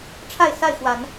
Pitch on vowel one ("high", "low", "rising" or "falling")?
falling